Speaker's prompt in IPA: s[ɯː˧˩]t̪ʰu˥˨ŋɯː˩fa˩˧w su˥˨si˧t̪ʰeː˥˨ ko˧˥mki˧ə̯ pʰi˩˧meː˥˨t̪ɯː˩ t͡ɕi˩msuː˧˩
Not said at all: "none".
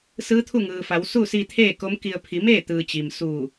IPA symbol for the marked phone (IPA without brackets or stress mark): ɯː˧˥